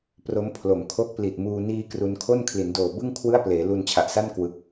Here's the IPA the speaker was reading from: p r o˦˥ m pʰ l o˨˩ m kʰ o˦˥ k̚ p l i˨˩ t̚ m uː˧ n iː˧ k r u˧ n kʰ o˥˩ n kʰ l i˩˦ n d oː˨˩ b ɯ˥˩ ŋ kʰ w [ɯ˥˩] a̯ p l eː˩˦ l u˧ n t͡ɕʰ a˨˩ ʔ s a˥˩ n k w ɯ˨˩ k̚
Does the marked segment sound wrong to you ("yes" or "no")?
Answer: no